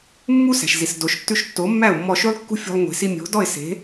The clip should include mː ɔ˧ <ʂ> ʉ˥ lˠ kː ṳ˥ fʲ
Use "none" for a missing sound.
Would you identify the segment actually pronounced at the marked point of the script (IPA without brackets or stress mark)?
ʃ